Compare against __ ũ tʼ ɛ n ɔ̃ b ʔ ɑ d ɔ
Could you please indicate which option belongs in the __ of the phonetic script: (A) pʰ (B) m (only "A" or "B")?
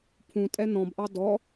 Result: A